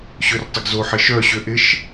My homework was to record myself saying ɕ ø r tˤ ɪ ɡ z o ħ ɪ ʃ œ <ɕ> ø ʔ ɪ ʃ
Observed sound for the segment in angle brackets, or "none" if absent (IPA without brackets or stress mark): ɕ